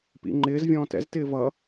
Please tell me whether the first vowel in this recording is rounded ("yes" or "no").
no